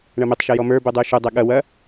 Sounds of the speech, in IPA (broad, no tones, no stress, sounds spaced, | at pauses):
ɳ ɐ m e tˤ ʃ ɛ j ɔ m ə˞ b u dˤ u ʃ u dˤ ɛ ɠ ɐ w ɐ